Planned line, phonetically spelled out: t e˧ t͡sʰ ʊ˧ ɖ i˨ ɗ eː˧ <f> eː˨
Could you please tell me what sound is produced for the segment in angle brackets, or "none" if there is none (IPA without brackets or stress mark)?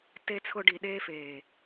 f